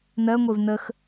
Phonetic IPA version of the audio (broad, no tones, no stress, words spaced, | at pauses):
nɜŋʷev nəx